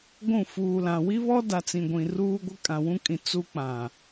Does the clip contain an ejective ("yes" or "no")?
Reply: yes